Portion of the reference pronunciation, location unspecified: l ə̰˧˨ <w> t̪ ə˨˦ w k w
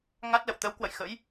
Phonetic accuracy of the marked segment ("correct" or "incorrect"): correct